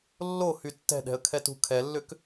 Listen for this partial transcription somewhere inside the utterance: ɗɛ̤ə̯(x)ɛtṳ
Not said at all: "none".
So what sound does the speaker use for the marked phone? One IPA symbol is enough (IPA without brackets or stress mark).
kʰ